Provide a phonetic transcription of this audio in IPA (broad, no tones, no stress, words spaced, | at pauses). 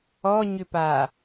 ɔɲʏpa